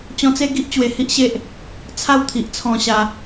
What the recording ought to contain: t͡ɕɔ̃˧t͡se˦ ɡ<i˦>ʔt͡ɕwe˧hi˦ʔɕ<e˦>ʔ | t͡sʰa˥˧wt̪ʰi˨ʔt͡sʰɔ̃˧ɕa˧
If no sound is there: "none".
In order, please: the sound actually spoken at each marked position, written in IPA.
i˦, e˦

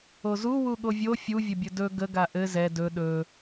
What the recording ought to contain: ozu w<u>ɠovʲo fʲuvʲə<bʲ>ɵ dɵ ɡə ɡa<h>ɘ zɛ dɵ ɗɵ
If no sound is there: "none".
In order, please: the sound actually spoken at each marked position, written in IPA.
u, bʲ, ʔ

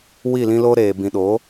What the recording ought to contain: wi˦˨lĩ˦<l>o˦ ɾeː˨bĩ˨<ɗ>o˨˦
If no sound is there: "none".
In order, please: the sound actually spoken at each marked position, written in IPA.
l, ɗ

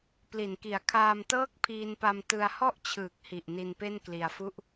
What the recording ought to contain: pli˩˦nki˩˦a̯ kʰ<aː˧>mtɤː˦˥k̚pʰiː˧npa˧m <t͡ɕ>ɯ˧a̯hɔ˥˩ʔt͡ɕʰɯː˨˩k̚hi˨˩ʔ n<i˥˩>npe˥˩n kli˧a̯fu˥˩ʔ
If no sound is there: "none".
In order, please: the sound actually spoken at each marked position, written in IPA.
aː˧, t, i˧

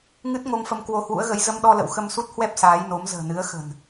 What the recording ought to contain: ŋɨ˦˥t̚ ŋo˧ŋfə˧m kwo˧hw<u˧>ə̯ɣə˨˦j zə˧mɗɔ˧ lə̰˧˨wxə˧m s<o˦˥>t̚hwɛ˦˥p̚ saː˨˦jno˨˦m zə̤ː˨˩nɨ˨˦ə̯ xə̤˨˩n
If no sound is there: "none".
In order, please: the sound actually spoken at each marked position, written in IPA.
ṵ˧˥, u˦˥

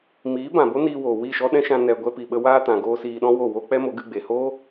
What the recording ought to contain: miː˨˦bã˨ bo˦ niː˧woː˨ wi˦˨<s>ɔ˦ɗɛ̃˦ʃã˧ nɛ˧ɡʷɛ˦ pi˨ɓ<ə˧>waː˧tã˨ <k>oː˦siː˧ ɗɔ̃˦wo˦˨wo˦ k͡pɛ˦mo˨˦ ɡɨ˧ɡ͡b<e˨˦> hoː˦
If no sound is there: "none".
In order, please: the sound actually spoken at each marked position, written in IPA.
ʃ, ə˧, ɡ, e˨

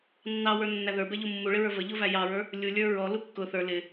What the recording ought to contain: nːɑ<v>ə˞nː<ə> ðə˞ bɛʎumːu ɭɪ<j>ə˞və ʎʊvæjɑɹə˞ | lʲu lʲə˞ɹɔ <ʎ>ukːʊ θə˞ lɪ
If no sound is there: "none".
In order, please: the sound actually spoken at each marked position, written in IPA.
w, æ, ɹ, l

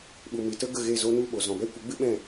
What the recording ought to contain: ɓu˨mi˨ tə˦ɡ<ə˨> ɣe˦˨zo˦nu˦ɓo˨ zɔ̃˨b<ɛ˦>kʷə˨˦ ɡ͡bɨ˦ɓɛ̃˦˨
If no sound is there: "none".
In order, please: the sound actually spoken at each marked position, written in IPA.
ə˦˨, ɛ˦

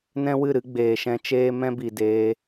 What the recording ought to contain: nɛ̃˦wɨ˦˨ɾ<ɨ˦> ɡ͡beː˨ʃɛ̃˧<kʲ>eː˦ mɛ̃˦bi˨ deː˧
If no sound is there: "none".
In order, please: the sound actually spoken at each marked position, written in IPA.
ɨ˦, t͡ʃ

